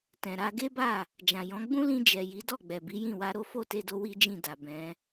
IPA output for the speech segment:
t ɛ̃˨ ɾ a˧ ɡ e˦ b a˦˨ | d͡ʒ ã˨ j ɔ̃˨˦ ɡ͡b ũ˦ l ĩ˧ d͡ʒ ɛ˨ j i˨˦ d ɔ˦˨ ɡ͡b ɛ˨ b i˨˦ j ĩ˦˨ w a˧ ɾ o˦ f o˦˨ t e˧ d o˧ w i˦ d͡ʒ ĩ˦˨ d a˨ b ɛ̃˨˦

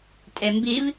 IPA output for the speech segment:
tʼ e m b i v

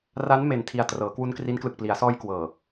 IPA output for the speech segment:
r a˦˥ n m e˧ n tʰ i˧ a̯ t r ɤː˩˦ k w u˦˥ n k r i˦˥ n k l ɯ˨˩ k̚ p l i˩˦ a̯ s ɔː˧ j k w ɤː˨˩

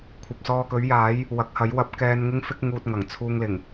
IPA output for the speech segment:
kʷʰ ɐ˨ p̚ s ɔː˧ k ɵ˨˥ ɥ j aː˨˥ j | w ɐ˨˥ k̚ h ɐ˨˥ j w ɐ˨˥ p̚ k ɛː˧ n ŋ ɪ˥ ŋ f ɪ˥ k̚ ŋ uː˧ t̚ ŋ ɐ˨˩ ŋ t͡sʰ uː˧ ŋ l ɪ˨˩ ŋ

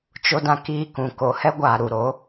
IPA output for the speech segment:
t͡ʃ o˧ d ã˧ k iː˧ k ũ˨ k o˨ h ɛ˦ ɡʷ aː˨ ɾ u˨ ɾ o˨˦

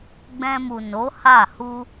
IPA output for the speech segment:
ɡ͡b ɛ̃˧ m u˨ n o˨˦ h a˦˨ h u˧

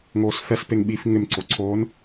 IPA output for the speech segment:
ŋ oː s f ɛ s p e ŋ ɓ i f ŋ ɪ m ǀ o ǀʰ oː n

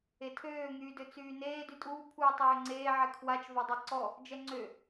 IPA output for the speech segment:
e tʰ øː ŋ yː d ø t͡s yː n eː d y tʼ uː pʰ uː tˤ øː ŋ͡ǀ eː ʕ ɛ kʰ w a t͡ʃ v a dˤ ɛ ǀ ɔ | d͡ʒ ɛ ŋ͡ǀ ø

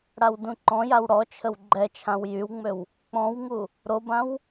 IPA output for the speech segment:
ɽ a w d ũ ǃ ɔ̃ j a w ɽ ɔ t͡ʃʰ ə w ɡ͡ǃ ɛ t͡ʃʰ ã w j y w ŋ͡m ø w | k͡p ɔ̃ w ŋ u | ɾ o b ã w

